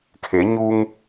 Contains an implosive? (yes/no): no